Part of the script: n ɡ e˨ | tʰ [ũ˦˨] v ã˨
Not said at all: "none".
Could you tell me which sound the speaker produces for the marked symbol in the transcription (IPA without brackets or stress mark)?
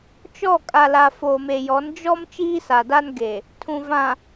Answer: ũ˨